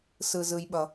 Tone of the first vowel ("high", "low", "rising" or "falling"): low